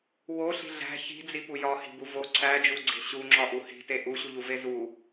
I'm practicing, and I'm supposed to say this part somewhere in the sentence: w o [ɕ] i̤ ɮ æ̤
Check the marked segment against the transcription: incorrect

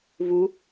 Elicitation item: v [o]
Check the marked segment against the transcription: incorrect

